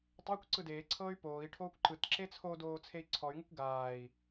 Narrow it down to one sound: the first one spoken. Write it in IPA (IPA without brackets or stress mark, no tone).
tˤ